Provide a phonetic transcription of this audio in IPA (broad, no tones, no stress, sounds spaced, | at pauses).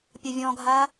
pʲ ɐ vʲ ɔ̃ ɡʱ a